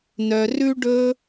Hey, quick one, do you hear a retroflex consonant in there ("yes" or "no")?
yes